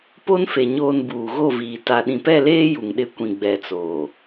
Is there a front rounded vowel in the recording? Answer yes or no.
no